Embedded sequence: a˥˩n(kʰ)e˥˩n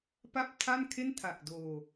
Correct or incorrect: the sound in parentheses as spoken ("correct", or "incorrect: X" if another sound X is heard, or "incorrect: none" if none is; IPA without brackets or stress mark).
correct